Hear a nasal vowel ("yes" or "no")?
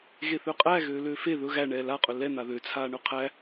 no